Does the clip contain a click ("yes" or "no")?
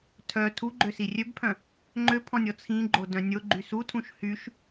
yes